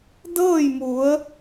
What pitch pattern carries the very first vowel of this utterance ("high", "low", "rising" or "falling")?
falling